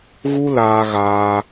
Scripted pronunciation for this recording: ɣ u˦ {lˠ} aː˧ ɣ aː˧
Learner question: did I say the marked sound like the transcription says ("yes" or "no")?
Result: no